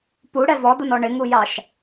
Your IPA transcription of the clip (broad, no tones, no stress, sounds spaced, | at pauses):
p u ɽ ɛ v ɔ d̪ ʊ n ɔ ɳ ɪ ŋ u j ɑ ʃ